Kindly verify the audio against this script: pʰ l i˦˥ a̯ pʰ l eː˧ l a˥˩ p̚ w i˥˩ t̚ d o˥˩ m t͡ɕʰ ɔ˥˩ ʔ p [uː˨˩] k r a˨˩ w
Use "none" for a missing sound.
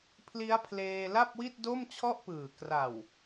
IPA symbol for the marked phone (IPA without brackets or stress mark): ɯː˨˩